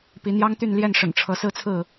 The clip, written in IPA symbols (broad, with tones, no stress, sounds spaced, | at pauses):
p i˨˦ n̪ j ɑ˦ ŋ t̪ y˥˨ n l j ɛ˥˨ n ʂ ə̰˨˩ n ʈ͡ʂʰ ɤ˨˦ s ɹ̩˦ t͡sʰ ɹ̩˥˨